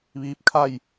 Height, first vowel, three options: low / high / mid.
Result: high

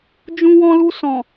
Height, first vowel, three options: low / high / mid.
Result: high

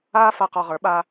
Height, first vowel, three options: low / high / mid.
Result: low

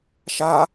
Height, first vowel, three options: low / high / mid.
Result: low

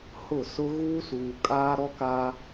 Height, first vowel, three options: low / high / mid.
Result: high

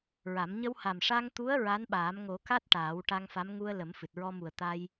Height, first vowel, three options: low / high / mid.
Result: low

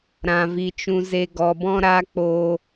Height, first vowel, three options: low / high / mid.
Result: low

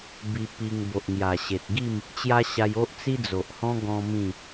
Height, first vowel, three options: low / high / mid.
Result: high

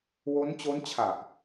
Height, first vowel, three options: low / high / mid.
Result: mid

